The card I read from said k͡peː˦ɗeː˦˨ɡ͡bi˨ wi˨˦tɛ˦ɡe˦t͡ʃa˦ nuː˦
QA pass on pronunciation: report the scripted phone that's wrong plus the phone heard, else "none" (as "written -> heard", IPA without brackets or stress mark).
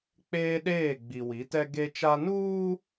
none